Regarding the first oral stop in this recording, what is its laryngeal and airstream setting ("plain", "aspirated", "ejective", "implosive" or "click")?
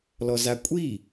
ejective